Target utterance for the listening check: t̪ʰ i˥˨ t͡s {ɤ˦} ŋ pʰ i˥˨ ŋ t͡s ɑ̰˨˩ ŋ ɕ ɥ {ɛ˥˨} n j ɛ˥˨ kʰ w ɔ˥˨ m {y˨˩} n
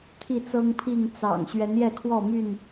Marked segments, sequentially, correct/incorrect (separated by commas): correct, incorrect, incorrect